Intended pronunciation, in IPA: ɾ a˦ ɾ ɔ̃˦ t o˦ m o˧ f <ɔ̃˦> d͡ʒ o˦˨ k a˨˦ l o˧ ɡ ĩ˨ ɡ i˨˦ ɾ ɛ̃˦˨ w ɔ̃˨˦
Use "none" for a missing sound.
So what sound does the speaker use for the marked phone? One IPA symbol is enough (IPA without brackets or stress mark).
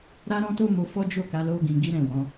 ɔ˦